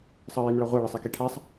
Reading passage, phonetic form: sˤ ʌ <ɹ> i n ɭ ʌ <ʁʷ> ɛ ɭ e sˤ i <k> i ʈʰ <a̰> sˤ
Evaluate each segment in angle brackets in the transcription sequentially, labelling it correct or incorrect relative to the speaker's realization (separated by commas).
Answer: correct, correct, correct, incorrect